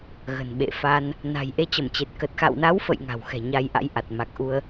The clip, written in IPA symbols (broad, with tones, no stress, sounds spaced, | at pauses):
ɣ ə̤˨˩ n ɓ ḛ˧˨ f a˧ n | n a̤˨˩ j ʔ e˧ t͡ɕ ə˧˩ m t͡ɕ e˨˩ t̚ k ə˨˩ t̚ x a̰˧˨ w n a˨˦ w f ə̰˧˨ j ŋ a̤˨˩ w x ɛ̤˨˩ ɲ a˧ j ʔ a̰˧˥ j ʔ a˨˩ t̚ m a˨˩ k̚ ʔ u˧ ə̯